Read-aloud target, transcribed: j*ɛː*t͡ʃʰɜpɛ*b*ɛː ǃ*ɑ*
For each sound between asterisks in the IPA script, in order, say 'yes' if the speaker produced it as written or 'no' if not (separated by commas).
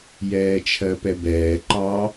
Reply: yes, yes, yes